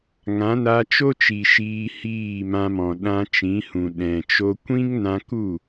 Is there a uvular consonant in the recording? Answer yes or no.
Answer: no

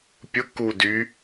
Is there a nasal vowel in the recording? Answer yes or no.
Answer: no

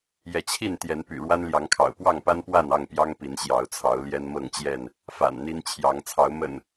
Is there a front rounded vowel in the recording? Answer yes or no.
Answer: yes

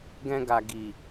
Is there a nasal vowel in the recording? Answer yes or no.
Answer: yes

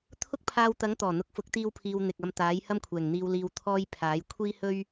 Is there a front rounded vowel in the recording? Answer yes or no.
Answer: no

